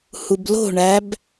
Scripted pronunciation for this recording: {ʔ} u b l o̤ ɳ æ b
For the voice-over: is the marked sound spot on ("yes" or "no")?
no